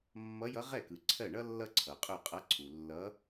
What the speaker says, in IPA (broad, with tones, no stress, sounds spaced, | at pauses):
mː ʌ˧˥ j ʌ˧˥ ʁ ɛ˥˩ k ɯ˨ ǀʰ ɜ˥˩ ɳ ʌ˥ lː ʌ˥ ǀʰ ʌ˨ qʼ ɵ˥˩ qʼ ʌ˧˥ ǀʰ u˨ lː ʌ˧˥